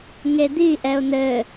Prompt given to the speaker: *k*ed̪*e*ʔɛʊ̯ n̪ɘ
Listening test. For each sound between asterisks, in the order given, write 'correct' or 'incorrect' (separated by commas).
incorrect, incorrect